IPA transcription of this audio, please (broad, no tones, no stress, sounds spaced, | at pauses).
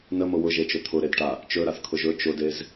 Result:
n ə m ʊ w ʊ ʒ e t͡ʃ ɵ t̪ʰ ʊ ɾ e d ʈ a | t͡ʃ ɵ ɾ a θ kʰ ʊ ʒ ɵ t͡ʃ ʊ d e z